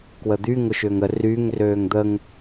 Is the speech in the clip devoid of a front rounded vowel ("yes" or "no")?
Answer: no